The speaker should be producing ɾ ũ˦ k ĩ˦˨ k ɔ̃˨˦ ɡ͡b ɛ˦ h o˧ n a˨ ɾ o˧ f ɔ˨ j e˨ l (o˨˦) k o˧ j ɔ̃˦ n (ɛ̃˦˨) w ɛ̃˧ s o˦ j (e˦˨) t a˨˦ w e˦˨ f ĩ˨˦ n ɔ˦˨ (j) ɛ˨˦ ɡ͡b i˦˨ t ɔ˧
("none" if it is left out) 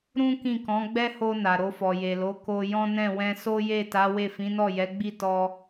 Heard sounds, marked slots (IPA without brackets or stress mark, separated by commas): o˨˦, ɛ̃˦˨, e˦˨, j